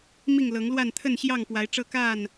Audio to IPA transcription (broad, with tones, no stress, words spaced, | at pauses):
mi˥˨ŋlɤ˨˦ŋlwa˥˨n t̪ʰə˥˨nɕjɑ˥˨ŋpwa˨˦ɪ̯ʈ͡ʂɤ˦ ka˥˨n